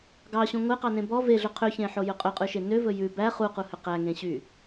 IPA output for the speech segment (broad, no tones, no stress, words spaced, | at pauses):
ɡɑɕũ ŋʷeqɑnẽ bɔ veɮɵ qʰøçẽħojɵ qʼɵqʼʉʃe nøvɵ jʉ bæ χuquhø qæŋẽɕy